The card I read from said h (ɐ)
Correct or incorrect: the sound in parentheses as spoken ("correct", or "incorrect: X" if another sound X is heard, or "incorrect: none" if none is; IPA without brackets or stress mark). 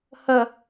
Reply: correct